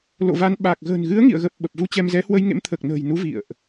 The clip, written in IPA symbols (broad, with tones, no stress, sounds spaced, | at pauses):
l o̰˧˨ v a˨˦ n ɓ a˨˩ k̚ ɣ ə̤ː˨˩ n ɣ ɨ˨˦ ə̯ ŋ ḭ˧˨ ə̯ ɣ ə˨˩ p̚ ɓ ə˨˩ p̚ v u˧ t͡ɕ ɛ˧ m z ɛ˨˦ h w ə˧ j ŋ ḛ˧˥ m t̪ʰ əː˨˩ k̚ n ə̤ː˨˩ j n u˨˦ v ḭ˧˨ ə̯ ʔ